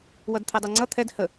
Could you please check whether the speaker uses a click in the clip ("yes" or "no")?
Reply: yes